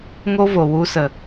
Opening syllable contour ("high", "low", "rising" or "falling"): high